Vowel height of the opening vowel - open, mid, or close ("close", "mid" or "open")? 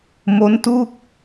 mid